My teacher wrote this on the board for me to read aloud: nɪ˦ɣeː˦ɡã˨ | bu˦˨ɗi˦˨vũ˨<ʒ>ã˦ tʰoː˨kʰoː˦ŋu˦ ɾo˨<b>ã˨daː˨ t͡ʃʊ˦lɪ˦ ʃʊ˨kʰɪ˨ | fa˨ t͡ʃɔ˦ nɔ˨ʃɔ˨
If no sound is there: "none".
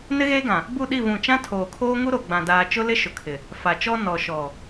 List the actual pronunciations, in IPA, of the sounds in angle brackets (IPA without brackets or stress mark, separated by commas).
t͡ʃ, ɡ͡b